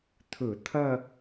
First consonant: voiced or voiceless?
voiceless